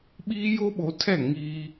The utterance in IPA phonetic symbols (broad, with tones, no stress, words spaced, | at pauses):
ɓiː˦jo˦ɓo˨˦tʰɛ˦˨ ŋiː˦